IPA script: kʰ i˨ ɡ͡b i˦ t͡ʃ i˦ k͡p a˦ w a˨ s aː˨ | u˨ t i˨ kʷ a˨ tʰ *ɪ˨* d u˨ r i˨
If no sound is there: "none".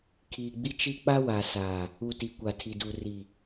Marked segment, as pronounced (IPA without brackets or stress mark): i˨